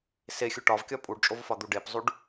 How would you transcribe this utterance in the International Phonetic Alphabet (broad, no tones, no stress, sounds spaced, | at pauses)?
s e xʲ u ʈ ɒ v kʲ ɒ pʼ u ɖ t͡ʃʼ o v f ɒ d̪ u ɖ e p zˤ u ɖ